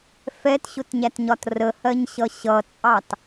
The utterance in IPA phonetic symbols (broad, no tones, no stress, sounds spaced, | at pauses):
f ɛ t ɕ ʊ t ɲ æ t ɲ ɒ t r ə h ɜ ɲ ɕ ʌ ɕ ʌ t͡sʼ ɑ t